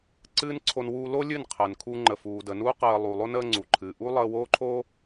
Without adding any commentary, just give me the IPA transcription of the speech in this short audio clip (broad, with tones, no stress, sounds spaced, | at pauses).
ǀ ɨː˦ n ǀʰ o˧ n w uː˧ l o˦ lʲ ɨ˦˨ n qʰ əː˨ n kʰ u˧ ŋ͡ǃ ə˨ f uː˨ d ə˨ n uː˦ q əː˧ lˠ u˨ lˠ o˦ n əː˦ ŋ͡ǀ u˨ ǃʰ ɨː˨ ʔ u˦ lˠ əː˧ w oː˦ ǃʰ oː˦